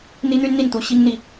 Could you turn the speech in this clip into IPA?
n̪ i˥ n̪ y˥ n n̪ i˥˩ n t̪ u˧˥ ɕ i˥ ŋ n̪ i˨

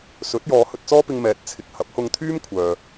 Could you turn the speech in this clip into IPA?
s ɵ˨˥ t̚ j ɔː˨˧ h ɵ˧ t̚ t͡s ɔː˥ p ɪ˧ ŋ m ɛː˨ t̚ t͡sʰ ɪ˨ k̚ h ɐ˨˥ p̚ h ʊ˧ ŋ t̪ʰ yː˥ m kʷʰ œː˨

